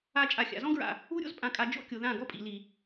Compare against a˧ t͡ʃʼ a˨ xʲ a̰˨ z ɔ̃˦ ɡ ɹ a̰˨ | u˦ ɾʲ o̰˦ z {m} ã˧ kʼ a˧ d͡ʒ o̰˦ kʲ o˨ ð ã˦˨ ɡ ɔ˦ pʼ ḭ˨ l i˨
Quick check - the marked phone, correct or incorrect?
incorrect